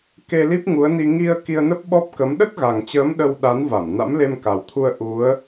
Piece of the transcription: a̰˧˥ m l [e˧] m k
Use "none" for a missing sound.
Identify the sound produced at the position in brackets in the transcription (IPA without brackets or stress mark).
e˧